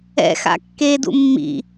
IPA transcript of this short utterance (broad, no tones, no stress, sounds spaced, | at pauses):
ɛ̰ x a̰ kː e d ṵ mː ḭ